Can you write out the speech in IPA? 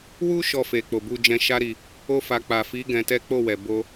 w u˧ ʃ ɔ˧ f e˨ k͡p o˨ b u˧ d͡ʒ ɛ̃˧ ʃ a˦ ɾ i˧ | o˦ f a˧ k͡p a˨ f i˨˦ ɡ ɛ̃˧ t ɛ˦ k͡p o˦˨ w ɛ˨ b o˧

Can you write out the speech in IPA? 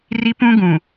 r i˦ p ũ˦ ɡ ũ˨

